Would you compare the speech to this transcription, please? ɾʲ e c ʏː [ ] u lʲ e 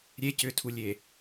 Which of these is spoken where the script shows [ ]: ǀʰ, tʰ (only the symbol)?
tʰ